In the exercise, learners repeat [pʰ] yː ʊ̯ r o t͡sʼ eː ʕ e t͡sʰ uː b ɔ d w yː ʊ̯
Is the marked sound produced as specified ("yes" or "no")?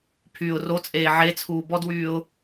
yes